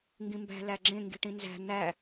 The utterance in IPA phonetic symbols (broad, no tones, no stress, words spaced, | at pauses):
ŋɡĩmbæ̤ læɡ͡ǁẽ ŋɡi̤ʈĩnzæ̤ n̪æ